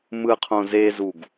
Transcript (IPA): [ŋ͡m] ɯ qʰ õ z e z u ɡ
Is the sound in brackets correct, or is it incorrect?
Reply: incorrect